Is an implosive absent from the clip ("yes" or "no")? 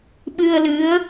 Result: no